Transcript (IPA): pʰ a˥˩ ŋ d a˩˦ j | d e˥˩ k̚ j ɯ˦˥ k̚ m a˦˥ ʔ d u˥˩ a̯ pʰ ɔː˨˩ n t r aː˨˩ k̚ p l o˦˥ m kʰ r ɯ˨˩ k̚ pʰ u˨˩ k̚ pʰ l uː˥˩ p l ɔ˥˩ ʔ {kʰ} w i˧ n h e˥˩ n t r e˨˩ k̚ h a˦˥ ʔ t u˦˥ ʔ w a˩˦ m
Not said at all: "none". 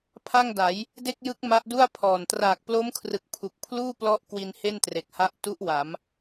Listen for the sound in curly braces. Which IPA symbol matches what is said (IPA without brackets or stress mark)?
k